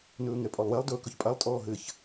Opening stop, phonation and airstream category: ejective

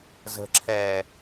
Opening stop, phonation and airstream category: click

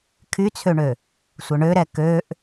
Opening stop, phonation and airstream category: aspirated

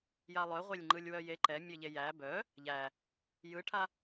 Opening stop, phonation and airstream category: click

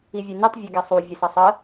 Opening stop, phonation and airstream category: plain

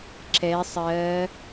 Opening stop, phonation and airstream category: click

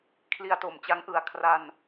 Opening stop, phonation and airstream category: aspirated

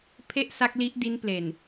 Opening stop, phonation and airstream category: aspirated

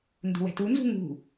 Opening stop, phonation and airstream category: plain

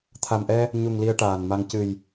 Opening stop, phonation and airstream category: aspirated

